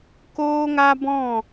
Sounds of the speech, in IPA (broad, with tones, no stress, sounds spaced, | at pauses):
k oː˦ ŋ a˦ b ɔ̃˦˨